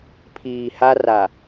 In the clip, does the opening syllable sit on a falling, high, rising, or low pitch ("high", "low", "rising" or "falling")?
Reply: low